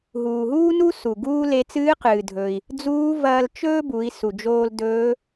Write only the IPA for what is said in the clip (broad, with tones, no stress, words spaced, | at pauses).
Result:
ɦuː˩ɦuː˥nu˥ su˩ ɡuː˥le˧˥ t͡sɨː˧˥qɨː˩dʱɵ˩i̯ | d͡zuː˧˥vɐː˧l t͡ʃɵː˥bu˩˧i̯ su˩d͡ʒoː˧l dɵː˧˥